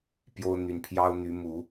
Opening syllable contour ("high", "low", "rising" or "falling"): high